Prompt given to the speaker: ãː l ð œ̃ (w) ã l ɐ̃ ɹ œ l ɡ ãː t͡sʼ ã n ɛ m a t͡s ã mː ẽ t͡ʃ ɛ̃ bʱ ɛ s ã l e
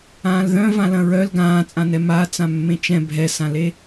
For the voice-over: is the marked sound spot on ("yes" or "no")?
no